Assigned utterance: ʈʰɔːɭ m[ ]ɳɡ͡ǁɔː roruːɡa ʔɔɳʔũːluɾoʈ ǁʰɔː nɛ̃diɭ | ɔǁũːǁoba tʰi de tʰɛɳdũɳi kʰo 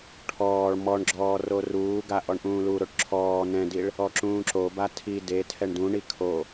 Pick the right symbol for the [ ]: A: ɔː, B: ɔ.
B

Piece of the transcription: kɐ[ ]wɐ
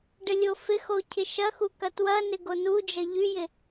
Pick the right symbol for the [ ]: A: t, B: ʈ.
A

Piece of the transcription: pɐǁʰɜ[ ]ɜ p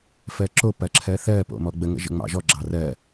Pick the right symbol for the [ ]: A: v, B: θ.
B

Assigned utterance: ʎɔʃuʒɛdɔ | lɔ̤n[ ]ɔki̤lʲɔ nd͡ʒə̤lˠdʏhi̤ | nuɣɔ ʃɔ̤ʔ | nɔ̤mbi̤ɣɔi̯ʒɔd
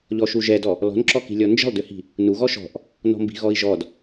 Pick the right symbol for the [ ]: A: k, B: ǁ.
B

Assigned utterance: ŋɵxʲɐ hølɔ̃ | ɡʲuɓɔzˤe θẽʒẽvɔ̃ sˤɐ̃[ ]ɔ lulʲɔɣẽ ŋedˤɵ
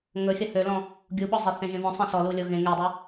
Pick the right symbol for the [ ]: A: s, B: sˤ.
A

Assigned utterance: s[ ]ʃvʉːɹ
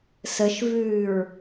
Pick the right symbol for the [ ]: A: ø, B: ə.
B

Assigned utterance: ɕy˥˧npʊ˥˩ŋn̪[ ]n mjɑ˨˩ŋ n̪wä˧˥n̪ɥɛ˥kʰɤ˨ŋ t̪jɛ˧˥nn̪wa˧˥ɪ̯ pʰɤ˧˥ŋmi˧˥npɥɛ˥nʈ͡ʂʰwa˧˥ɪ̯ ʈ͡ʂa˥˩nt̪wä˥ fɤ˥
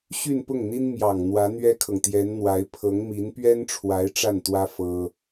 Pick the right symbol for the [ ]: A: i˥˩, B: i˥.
B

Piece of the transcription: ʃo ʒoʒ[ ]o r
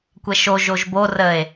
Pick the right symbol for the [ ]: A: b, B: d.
A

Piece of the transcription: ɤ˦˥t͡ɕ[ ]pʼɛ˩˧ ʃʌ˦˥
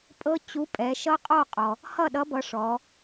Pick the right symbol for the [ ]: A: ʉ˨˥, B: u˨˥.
B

